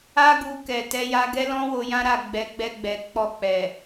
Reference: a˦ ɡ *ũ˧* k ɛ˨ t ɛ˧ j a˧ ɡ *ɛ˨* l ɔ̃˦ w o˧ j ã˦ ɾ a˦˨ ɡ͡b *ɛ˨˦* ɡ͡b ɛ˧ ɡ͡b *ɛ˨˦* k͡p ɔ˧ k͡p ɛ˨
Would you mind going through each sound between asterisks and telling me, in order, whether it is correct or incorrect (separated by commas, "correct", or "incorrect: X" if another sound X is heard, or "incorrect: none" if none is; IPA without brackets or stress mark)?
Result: incorrect: u˧, incorrect: ɛ˦, correct, incorrect: ɛ˨